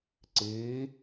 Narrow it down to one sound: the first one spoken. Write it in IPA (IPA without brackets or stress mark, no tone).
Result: ǀ